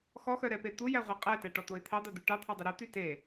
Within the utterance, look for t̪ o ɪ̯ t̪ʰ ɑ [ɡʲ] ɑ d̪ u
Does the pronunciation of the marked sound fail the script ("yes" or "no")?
yes